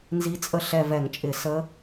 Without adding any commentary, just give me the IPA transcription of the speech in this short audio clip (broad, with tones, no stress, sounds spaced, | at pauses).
n z i˧˥ t͡sʼ ə˦˨ ɬ ɛ˦˨ v ɛ˧˩˧ ŋ t͡ʃʼ ɪ˧˩˧ s ə˧˥